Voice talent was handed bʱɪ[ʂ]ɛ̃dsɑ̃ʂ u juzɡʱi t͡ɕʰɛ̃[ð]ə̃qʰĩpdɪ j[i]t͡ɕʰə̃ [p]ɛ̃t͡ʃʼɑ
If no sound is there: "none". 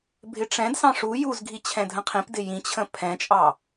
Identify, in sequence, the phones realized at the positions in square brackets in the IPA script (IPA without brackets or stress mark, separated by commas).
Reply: ʈ͡ʂ, dʱ, ĩ, pʰ